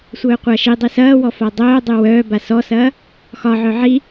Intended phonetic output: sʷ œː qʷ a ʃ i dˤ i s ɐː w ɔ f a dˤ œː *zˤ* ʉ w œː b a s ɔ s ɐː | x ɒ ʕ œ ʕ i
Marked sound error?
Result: yes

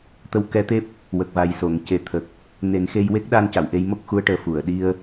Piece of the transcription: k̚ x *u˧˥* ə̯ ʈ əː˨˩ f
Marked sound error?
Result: no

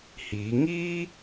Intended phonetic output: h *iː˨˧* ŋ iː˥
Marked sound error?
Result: no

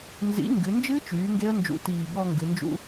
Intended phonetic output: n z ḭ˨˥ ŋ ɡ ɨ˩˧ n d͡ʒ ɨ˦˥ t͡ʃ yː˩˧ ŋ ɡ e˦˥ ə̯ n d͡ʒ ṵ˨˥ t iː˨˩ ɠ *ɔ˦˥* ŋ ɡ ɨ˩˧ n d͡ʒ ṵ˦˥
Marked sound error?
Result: yes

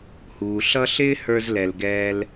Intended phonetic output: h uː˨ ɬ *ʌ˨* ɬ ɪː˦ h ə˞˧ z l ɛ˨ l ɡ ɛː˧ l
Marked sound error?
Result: yes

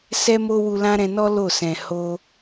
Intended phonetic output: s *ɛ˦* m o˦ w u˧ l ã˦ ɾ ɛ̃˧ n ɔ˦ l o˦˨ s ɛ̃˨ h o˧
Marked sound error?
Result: no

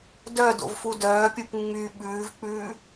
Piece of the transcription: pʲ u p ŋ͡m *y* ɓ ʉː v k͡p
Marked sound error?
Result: no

